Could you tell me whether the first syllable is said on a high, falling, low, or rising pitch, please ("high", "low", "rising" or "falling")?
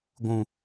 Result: low